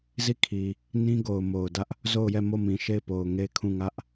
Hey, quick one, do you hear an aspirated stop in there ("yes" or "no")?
yes